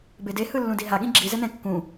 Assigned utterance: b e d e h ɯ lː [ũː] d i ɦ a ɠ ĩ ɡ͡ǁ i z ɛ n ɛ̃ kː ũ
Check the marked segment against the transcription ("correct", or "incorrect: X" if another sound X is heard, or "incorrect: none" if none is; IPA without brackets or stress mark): incorrect: ũ